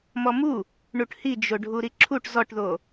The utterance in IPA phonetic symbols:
m ɔ m u | ɳ u ʈ h i d͡ʒ o ɖʱ u ɾ i ǁʰ u ʈ z ɔ ʈ ð o

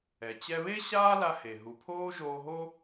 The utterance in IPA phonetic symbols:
ɛ˩ t͡ɕ ɛ˧ β e˥ ɕ aː˥ l a˧ h e˩ ɦ u˩ pʰ oː˥ ʒ oː˧ ɦ o˥

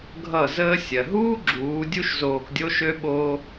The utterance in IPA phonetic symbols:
ɡʱ ʌ˦˨ z əː˦ sʲ ɜ˨ ɦ uː˦ ɡ͡ǁ uː˨˦ dʲ u˦ ʃ z oː˧ k dʲ o˦ ʃ ø˦ ɓ oː˦

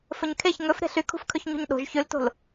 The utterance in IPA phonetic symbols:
f ɵ ɲ kʰ e ç ŋ ɵ f ɾ e̤ ɬ y kʰ ṳ f kʰ ɵ ç ɲ ṳ ɲ ɗ o̤ ʒ ç ʉ l t o̤ l

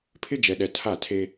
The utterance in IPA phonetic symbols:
pʰ ɪ˦ d͡ʒ ɛ˨ ɗ ɛ˨ tʰ a˦˨ tʰ e˦

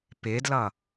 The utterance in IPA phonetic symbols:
p ɪ d l ʌ

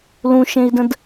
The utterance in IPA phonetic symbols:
l ũ ʃ ẽ i̯ d ə̃ d

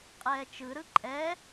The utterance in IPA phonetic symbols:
qʼ ɛː t͡ʃ ɯ ɾ ɯ ǃʼ ɛ

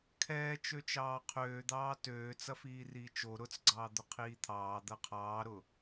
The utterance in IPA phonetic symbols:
kʰ ɛː t͡ʃ ø t͡ʃ ɑː qʰ øː d̪ ɑː t øː t͡s ɐ f iː r iː t͡ʃ o ɾ ʊ t͡s ɡ͡ǀ ɑː d̪ ʊ qʰ iː t̪ʰ ɑː d̪ ɐ qʰ ɑː ɾ ʊ

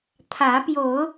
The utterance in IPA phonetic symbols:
t̪ʰ ä˨˦ p j o˨˦ ʊ̯

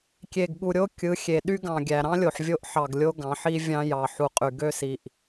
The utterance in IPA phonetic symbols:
kʲ e˨ ɡ ɠ u˨ ɾʲ o˦ kʲ ɯ˨˦ xʲ e˨ ɗ y˦ ɡ ɑ̃˨ ɡʲ æ˨ ɾ ɑ̃˦ lʲ o˨ ħ vʲ o˦ ʔ ħ ɑ˨ ɡ lʲ o˦ ɡ ɑ̃˨˦ ħ i˦ vʲ ɑ̃˦ j ɑ˨ ħ u˨ qʼ y˨ ɡ ø˦ s i˨ ʔ

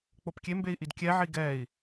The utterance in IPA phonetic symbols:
k͡p o p kʲ e m b e i̯ ʔ i d kʲ ɛ ʕ i ɡ ɛ i̯

